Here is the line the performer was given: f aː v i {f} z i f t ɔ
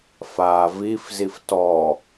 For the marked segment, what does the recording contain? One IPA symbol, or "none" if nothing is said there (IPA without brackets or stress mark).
f